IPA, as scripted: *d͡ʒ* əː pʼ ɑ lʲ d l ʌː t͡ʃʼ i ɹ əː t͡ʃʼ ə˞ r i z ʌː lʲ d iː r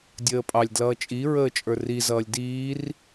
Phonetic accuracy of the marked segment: incorrect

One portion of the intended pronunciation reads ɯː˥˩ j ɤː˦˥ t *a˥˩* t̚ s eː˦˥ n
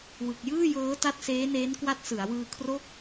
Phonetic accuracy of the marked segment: incorrect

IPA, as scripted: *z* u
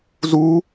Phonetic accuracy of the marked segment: correct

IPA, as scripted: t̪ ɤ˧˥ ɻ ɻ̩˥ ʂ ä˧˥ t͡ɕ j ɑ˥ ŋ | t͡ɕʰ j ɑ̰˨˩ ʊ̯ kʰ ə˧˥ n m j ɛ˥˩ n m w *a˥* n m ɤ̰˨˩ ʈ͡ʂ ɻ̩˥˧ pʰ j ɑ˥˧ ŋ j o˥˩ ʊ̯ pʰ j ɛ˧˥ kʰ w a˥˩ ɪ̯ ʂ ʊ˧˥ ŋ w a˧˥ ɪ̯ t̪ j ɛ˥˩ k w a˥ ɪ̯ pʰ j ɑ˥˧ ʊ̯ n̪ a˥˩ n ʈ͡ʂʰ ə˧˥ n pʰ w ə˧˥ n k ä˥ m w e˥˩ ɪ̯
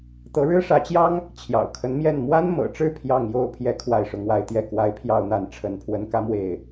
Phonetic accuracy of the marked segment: correct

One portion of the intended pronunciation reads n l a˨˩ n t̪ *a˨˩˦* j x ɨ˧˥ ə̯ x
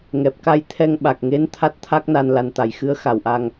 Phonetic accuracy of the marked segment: incorrect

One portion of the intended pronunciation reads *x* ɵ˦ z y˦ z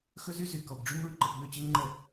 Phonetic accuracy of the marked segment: correct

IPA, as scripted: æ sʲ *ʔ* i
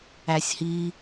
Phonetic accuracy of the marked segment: incorrect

